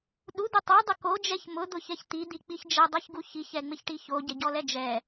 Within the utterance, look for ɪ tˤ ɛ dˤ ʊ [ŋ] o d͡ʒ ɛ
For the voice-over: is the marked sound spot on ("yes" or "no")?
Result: no